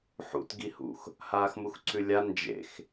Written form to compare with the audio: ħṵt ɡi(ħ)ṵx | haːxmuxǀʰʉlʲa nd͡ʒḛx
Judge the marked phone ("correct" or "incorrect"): incorrect